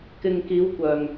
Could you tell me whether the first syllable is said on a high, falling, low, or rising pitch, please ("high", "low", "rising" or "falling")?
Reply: low